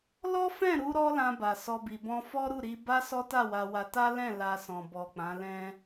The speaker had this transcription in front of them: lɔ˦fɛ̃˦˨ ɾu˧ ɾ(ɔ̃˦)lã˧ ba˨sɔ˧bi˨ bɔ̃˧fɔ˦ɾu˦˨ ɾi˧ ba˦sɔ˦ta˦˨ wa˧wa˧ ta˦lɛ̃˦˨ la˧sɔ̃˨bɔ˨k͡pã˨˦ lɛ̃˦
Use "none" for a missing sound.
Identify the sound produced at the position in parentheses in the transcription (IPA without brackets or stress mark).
ɔ˦